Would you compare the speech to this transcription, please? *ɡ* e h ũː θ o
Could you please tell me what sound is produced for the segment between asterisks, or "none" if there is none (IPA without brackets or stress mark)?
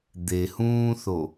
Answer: d̪